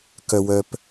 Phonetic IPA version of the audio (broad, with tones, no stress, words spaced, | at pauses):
kœ˨wœ˨p